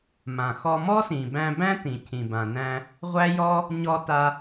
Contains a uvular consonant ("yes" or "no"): yes